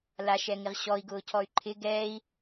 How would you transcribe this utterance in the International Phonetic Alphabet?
l a ʃ ɛ ŋ ɪ ʁ ɕ ɔ i̯ ɡ ʊː cʰ ɔ y̯ ǃʰ ɪ ɡ ɛː i̯

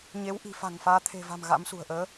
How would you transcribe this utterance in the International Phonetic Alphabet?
ɲ e˨˦ w ʔ i̤˨˩ f a̤˨˩ ŋ f aː˨˦ t̪ʰ e̤˨˩ v a̤˨˩ m ɣ a̰˧˥ m s ṳ˨˩ ə̯ ʔ əː˨˦

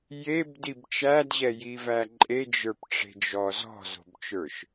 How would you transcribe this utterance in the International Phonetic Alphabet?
j e b d i b t͡ʃ æ d ʑ ɛ j i v æ ǃʼ e d͡ʒ ə˞ p ʈ͡ʂ e̤ d͡ʒ ɔ z ɔ̤ z o̤ b t͡ʃ ə˞ ʃ

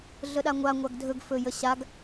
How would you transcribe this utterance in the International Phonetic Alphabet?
ɮ ə ɗ a ŋʷ a ŋʷ a ɡ dʱ ɵ ɡ f ɵ j ə ɕ a ɡ

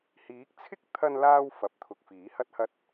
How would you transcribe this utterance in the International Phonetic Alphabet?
h iː˨˥ k̚ t͡sʰ ɪ˥ k̚ t̪ʰ ɐ˧ n l aː˧ w f ɐ˨˥ p̚ t̪ʰ ʊ˨ k̚ f iː˨˥ h ɐ˥ t̚ h ɐ˥ t̚

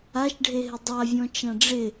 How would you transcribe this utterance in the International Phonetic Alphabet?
a ʃ ɖʱ e ɦ ɪ dˤ a vʲ ɔ̃ t͡ʃ ã ɖ͡ʐ ɪ

